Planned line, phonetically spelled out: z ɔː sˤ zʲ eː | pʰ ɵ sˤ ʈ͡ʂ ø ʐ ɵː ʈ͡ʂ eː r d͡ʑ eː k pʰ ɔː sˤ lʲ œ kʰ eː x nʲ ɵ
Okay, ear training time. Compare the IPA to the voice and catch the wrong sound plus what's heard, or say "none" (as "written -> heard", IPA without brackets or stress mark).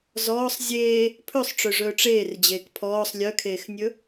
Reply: none